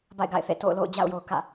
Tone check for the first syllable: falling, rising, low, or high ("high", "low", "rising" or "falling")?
falling